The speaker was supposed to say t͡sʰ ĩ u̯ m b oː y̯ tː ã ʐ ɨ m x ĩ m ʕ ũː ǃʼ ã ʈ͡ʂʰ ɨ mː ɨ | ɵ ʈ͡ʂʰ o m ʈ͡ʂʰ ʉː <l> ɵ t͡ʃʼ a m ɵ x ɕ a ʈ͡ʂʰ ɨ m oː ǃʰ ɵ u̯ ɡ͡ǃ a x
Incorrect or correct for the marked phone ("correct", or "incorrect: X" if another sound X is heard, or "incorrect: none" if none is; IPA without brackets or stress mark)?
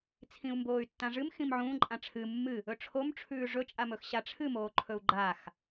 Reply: incorrect: ʐ